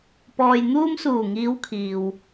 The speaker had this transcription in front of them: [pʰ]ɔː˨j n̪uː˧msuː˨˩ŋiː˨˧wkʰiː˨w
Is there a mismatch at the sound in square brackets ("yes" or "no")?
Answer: yes